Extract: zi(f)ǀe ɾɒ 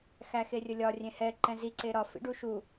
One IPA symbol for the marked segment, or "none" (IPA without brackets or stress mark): none